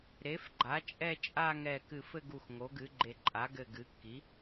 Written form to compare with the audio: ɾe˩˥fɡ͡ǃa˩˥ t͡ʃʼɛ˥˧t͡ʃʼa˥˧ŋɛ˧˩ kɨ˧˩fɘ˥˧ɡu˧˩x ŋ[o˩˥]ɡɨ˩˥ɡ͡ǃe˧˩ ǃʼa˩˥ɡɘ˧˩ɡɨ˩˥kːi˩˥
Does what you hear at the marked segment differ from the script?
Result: no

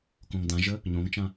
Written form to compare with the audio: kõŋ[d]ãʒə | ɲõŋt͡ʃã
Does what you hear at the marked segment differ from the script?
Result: no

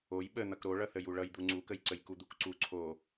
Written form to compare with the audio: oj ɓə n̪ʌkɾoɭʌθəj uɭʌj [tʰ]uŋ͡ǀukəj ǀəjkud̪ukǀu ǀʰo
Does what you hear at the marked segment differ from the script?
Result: yes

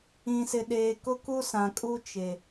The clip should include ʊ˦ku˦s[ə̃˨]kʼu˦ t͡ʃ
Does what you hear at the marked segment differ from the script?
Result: yes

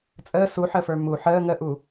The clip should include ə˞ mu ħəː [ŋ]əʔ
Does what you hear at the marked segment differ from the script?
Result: no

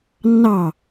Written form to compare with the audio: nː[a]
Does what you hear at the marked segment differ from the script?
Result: yes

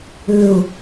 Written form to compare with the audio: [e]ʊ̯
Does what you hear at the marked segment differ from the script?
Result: yes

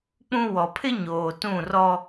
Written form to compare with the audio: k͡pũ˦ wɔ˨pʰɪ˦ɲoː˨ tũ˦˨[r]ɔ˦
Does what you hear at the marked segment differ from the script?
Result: no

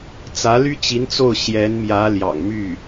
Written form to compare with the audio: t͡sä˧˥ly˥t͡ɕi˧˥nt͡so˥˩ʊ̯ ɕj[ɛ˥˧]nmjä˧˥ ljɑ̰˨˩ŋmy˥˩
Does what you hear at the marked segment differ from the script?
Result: yes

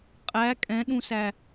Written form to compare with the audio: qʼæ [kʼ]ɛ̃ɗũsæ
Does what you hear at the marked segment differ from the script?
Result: no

